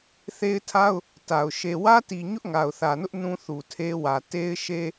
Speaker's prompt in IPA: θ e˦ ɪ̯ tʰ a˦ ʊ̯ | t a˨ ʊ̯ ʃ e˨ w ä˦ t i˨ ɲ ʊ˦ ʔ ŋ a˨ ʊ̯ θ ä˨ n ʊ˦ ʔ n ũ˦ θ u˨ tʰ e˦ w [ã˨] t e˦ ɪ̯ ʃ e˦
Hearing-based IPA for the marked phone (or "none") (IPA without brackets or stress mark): ä˨